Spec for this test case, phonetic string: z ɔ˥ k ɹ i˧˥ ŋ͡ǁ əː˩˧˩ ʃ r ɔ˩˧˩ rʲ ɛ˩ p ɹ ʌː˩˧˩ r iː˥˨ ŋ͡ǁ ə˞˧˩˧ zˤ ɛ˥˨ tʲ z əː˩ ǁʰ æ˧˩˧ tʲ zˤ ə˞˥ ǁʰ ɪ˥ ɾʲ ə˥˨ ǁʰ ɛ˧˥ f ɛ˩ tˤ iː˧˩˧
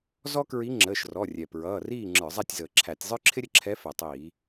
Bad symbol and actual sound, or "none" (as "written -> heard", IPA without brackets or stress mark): none